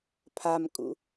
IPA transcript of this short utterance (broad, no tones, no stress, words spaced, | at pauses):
pʰamkʼṵ